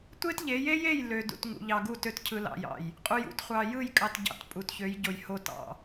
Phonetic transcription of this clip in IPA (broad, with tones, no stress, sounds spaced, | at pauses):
tʷ e˦ t ʎ e˨˦ j e˦ j e˦˨ j l ø˨ d ṵ˨ t ŋ ṵ˨ ʎ ɑ˨ ɡ u˦˨ t ø˦ t cʰ ɯ˨ l ɑ̰˨ j ɑ̰˨ j | qʼ u˨ j ṵ˦ t χʷ ɑ˨ j ɯ˦˨ j kʼ ɑ˨ t ɟ ɑ̰˨ t pʼ u˨ t ç ø˨˦ j ɟ o˨ j h o˨ t ɑ̰˨